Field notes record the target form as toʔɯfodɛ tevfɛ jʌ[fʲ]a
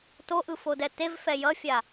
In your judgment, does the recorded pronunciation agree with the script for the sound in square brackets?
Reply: yes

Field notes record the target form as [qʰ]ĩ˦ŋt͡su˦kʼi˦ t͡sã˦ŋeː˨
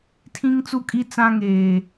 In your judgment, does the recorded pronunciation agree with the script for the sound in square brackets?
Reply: no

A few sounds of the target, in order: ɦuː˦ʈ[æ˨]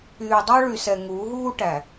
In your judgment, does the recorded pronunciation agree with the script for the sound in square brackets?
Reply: yes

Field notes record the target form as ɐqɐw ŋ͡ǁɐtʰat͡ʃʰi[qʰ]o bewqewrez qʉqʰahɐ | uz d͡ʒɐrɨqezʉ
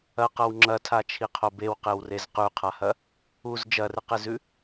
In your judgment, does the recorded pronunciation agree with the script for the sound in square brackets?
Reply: yes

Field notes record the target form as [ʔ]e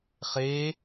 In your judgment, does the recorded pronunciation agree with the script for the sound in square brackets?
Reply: no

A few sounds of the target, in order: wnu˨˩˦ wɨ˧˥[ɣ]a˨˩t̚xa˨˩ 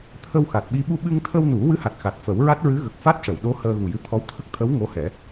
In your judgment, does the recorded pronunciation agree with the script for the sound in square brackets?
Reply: no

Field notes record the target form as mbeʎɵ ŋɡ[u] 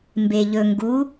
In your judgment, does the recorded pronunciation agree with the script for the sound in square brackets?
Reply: yes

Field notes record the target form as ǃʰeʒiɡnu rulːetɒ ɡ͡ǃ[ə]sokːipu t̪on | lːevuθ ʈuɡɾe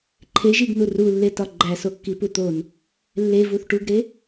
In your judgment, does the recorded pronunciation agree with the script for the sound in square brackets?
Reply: no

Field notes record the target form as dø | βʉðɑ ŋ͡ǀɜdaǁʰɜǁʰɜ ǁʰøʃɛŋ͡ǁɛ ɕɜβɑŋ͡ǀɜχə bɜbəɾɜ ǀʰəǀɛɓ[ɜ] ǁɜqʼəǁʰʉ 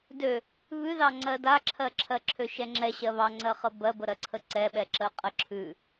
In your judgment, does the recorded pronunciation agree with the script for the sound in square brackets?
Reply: no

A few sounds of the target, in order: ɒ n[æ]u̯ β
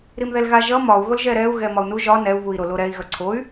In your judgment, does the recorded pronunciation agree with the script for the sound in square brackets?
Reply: no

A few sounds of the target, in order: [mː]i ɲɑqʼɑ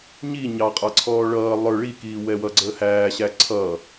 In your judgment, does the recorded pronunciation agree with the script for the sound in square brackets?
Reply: no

